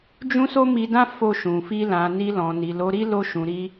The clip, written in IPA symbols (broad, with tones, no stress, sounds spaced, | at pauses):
d͡ʒ ũ˦ s o˦ m i˧ d ã˦ f o˦˨ ʃ ũ˨ f i˧ l ã˨ n i˧ l ɔ̃˨ n i˨ l o˨˦ ɾ i˦ l o˧ ʃ ũ˨ ɾ i˧